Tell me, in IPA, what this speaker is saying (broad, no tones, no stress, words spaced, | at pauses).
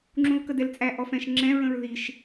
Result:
ŋ͡ǁũlkədɛlt͡sʼæ ʔɔfɛ̃ʃ ŋ͡ǁɛ̃ ɹə̃ɹðiʃ